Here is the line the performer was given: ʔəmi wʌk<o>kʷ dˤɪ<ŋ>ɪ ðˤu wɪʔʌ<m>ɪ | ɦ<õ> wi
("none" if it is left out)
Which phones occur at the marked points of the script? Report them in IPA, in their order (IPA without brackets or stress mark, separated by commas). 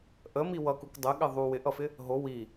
u, ɠ, f, o